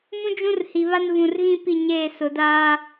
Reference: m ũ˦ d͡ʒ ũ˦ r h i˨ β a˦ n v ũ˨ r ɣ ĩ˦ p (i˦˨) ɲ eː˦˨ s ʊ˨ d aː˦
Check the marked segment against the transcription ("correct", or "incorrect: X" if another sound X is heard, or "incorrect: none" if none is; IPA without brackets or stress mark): correct